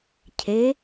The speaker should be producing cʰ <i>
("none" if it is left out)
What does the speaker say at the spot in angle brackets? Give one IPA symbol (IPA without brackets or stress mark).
e